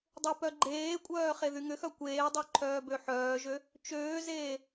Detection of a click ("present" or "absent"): present